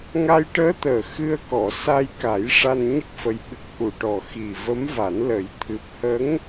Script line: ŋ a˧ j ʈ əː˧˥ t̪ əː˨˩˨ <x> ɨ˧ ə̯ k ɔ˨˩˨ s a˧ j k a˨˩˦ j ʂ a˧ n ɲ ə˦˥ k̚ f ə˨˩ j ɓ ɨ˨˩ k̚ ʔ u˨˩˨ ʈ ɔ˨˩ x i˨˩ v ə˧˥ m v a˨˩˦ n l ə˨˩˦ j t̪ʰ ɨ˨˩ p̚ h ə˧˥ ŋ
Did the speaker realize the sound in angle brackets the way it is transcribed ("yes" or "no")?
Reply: yes